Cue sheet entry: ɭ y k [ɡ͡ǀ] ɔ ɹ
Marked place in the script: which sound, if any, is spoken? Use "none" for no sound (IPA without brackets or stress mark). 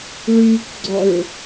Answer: ɡ͡ǀ